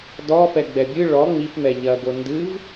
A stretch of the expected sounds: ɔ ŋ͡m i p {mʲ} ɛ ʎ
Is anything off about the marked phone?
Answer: yes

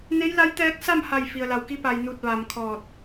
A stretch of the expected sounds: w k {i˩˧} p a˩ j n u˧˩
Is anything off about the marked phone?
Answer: yes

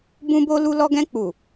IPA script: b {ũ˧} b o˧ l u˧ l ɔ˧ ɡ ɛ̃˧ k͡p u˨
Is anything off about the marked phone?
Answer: no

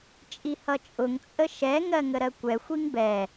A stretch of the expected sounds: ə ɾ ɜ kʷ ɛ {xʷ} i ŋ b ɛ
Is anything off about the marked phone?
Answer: no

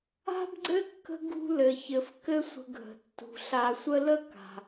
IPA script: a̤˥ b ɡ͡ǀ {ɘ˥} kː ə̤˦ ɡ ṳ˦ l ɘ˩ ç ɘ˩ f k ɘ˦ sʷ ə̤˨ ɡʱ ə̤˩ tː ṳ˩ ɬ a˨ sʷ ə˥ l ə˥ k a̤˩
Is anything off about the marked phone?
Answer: no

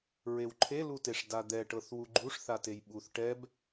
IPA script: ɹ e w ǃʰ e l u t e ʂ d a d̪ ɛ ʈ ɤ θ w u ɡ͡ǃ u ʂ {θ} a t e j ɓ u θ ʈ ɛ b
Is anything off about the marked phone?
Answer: no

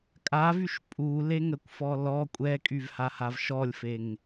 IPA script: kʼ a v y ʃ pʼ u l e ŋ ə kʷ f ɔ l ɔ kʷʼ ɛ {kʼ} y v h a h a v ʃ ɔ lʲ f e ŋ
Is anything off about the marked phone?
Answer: no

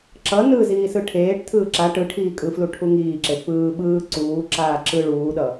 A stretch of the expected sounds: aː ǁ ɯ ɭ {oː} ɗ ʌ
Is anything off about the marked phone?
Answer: yes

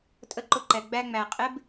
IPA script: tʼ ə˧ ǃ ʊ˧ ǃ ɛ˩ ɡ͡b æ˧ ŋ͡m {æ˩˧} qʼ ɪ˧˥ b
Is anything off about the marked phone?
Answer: yes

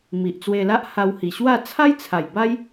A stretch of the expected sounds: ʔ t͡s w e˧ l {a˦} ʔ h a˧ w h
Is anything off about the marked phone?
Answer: no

